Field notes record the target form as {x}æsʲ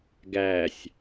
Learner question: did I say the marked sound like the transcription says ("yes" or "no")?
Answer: no